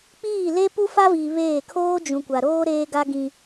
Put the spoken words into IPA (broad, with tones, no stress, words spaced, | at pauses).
k͡piː˦˨ le˦pu˦fa˦viː˨ βeː˦˨ kʰoː˦d͡ʒũ˨kʷa˨ɾoː˦ ɾeː˦ɡa˦ ɡĩ˦